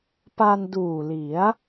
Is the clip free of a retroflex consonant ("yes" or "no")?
yes